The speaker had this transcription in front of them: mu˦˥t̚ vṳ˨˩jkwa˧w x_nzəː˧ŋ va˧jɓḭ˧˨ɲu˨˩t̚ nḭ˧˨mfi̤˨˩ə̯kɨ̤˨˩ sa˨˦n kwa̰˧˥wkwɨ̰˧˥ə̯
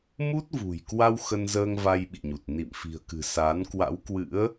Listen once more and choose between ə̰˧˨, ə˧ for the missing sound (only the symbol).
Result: ə˧